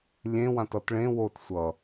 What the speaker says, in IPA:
lʲ ẽ w ã t ʌ t ɭ ẽ w o t sʷ ʌ

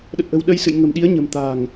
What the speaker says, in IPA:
ɗ ə˨˩ t̚ ʔ ə̤˨˩ w ɗ ə˧ j s ɨ̰˧˨ j ŋ ə̤˨˩ m ɗ i˨˦ ə̯ ɲ ə̤˨˩ m t̪ a̤ː˨˩ ŋ

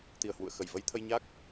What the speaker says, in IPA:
t̪ i˧˩ ə̯ h w ṵ˧˨ ə̯ x ə˧˩ j v ə˧ j t̪ʰ ə˧ j ɲ a˦˥ k̚

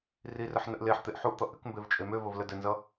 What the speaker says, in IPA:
r i r ə ħ n ə ʔ l e ħ t̪ e ʔ ħ u ʔ t̪ ʌ ʔ ɘ k m b e v t͡ʃʼ e m ø v ə v l ə d ɘ n z ʌ

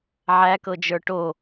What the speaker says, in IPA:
ʕ æ k ɤ d͡ʒ ə˞ ʈ o

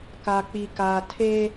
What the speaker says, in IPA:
k a˨ k͡p i˨ k aː˨ tʰ eː˦

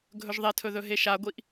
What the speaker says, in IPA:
ɡʱ ɵ ʒ ðˤ e tʰ ɵ ð ɵ ɦ e ʃ a ɡʷ i ʔ

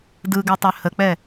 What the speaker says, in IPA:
d ɯ ɡ ø tˤ ø h ə k͡p ɛ

